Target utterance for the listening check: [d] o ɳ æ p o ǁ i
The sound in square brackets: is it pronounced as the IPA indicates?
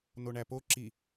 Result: no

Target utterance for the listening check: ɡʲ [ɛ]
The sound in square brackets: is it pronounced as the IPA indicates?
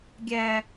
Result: no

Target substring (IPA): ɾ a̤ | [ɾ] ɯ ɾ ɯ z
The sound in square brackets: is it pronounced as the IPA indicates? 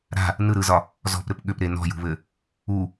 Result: no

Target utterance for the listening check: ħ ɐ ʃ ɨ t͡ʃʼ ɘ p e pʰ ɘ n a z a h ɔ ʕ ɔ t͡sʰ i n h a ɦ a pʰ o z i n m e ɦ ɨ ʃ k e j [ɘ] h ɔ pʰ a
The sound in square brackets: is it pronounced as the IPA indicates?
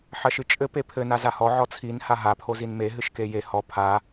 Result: no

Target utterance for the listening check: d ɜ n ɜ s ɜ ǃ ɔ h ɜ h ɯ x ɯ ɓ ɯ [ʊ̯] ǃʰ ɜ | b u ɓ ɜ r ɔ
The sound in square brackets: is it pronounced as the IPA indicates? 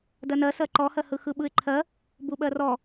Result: no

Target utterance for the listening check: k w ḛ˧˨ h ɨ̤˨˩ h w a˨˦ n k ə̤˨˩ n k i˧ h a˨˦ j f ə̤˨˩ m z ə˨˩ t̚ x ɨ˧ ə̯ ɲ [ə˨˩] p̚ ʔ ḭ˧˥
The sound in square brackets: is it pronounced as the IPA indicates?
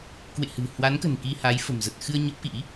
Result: no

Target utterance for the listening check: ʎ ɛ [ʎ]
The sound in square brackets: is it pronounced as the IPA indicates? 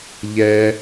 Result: no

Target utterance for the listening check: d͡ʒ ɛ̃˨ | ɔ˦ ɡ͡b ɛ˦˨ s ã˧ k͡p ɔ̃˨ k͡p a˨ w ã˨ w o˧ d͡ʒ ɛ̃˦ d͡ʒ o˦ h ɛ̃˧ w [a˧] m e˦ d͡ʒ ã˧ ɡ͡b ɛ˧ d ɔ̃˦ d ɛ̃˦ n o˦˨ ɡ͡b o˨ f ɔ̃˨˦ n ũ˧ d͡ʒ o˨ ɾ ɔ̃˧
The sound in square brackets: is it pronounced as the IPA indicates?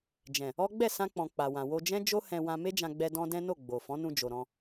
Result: no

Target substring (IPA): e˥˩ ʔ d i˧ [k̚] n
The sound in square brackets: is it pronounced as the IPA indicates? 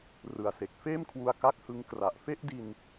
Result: no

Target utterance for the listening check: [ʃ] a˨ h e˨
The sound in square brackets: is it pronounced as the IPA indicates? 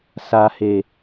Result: no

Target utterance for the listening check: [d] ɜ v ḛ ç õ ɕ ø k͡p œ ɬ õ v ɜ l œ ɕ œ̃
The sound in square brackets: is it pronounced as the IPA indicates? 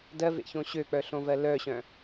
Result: yes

